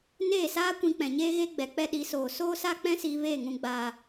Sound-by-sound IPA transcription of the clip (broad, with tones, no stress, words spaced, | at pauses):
neː˦˨saː˦ kʷĩ˧k͡pɛ̃˨ɲeː˦ ɣe˦ɡ͡bɛ˨ k͡pɛ˧ɗi˨˦soː˨ soː˦sa˦k͡pɛ̃˦ siː˧veː˦˨ŋũ˨ɡ͡baː˨